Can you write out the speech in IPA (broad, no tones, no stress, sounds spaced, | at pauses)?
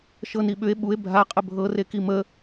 ʃ ɤ n i ɓ ʏ e̯ ɓ u e̯ bʱ a qʼ ə bʱ ɤ r e k i m ə